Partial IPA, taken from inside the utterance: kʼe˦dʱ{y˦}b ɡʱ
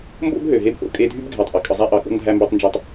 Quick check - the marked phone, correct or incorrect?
incorrect